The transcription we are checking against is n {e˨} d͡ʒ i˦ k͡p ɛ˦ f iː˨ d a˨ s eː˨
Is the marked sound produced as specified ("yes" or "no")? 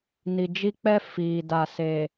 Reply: no